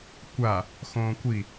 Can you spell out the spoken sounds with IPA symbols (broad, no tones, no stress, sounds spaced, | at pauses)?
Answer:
kʷ a | x õː kʷ i